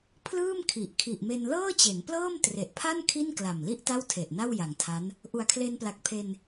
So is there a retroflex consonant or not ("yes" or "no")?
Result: no